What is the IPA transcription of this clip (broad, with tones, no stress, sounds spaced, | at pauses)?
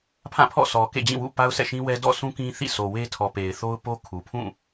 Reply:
pʰ ã˦˨ pʰ ɔ̰˦˨ sʰ ɔ˨ k ḛ˦˨ d͡ʑ ĩ˦˨ w ṵ˦˨ p a˦ ʊ̯ s ɛ̰˦˨ ʃ ĩ˦ w ɛ˦ d ɔ̰˦˨ s ũ˦ k ĩ˦ θ ḭ˦˨ s o˨ w e˦ tʰ ɔ˨ p e˨ ɪ̯ θ o˦ ʊ̯ p o˦ kʰ u˨ pʰ ũ˦˨